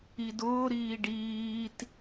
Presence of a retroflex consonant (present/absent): present